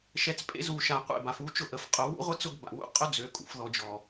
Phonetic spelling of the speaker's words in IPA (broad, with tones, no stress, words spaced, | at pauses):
ʃɛ˨t͡spʼḛ˦ zu˨ʃa˨ qʷḛ˦˨ba˨fu˦t͡ʃʊ˦˨ ʔə˨fqʼʊ˨ wṵ˦ʁʷə˦ t͡sʊ˦ɡba̰˨wṵ˦ qʼʊ˦d͡zø˨kʼṵ˨fðɔ˨ d͡ʒɔ˨